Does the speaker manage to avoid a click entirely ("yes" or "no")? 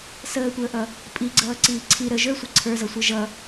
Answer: no